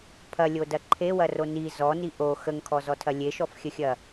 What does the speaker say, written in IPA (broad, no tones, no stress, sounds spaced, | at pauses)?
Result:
pʰ ɐ lʲ o d ɐ ǃʰ e w ɐ r o n i z ɔ n i ʔ o x ə ŋ kʰ ɔ z ɔ tʰ ɐ lʲ e ʃ ɔ f xʲ ə xʲ ɐ